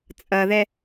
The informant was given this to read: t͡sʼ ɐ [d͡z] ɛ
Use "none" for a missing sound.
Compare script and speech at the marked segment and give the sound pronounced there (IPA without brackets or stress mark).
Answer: ð